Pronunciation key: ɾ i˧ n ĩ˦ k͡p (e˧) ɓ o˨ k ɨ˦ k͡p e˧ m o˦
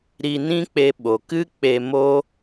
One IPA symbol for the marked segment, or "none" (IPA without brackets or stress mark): e˧